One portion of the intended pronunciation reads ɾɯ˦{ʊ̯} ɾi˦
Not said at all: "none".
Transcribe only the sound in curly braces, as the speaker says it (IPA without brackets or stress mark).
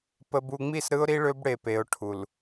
ʊ̯